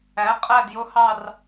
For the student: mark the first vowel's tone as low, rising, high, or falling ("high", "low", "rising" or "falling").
rising